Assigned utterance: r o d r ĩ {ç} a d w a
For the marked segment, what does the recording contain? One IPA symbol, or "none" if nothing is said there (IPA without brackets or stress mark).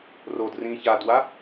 ç